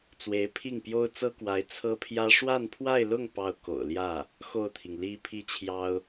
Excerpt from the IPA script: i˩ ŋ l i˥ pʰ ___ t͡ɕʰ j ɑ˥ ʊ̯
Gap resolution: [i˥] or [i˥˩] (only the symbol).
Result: i˥